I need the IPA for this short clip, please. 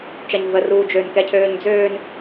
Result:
t͡ʃ ɐ ɲ v ə r uː d͡ʒ ø n k ɛ cʰ øː ɲ d͡z øː n

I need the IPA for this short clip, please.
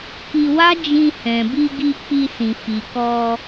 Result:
k i˧ w a˦ d͡ʒ ĩ˧ h ɛ̃˨ b i˧ ɡ i˧ k͡p i˧ s ĩ˨ f i˨ k ɔ˧

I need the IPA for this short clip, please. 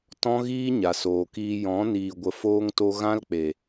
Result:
t ɔ̃˦ ɣ iː˦ ɲ a˨ s oː˨ k iː˧ j ɔ̃˨˦ n iː˨ ɡʷ ə˨ f oː˧ ŋ t o˧ ɣ ã˦ l k͡p e˨

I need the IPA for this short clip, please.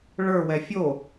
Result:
ɭ ə˞ w ɛ fʲ o

